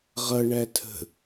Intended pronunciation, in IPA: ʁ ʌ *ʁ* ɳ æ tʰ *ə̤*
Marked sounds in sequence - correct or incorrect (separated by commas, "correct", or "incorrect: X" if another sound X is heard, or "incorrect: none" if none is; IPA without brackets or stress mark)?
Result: incorrect: none, correct